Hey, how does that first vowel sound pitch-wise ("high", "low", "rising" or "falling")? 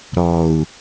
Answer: low